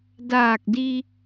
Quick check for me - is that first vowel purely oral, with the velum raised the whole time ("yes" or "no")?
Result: yes